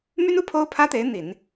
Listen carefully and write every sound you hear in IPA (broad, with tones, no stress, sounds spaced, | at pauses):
m y˥ n u˥ pʰ o˥ ʊ̯ pʰ ä˥ t̪ e˧˥ ɪ̯ n̪ i˨˩˦ n